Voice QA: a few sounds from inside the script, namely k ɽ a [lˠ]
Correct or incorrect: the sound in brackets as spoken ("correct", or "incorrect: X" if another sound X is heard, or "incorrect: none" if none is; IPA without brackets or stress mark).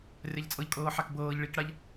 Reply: incorrect: ʎ